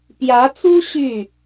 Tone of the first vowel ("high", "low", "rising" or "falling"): rising